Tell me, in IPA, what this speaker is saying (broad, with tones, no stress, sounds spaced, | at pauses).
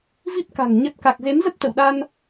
v i˦˥ p̚ k a̤˨˩ ŋ ɲ ə˨˩ t̚ k a˨˩ k̚ z e˨˦ m z ə˦˥ p̚ t̪ ə̰˧˨ w ɗ a˧ n